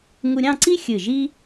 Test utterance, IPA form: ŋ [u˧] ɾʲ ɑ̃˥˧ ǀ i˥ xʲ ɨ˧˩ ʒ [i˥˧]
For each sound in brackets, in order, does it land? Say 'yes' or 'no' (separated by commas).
yes, no